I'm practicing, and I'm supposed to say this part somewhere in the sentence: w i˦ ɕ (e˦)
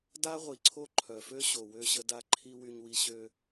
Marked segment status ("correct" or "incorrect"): incorrect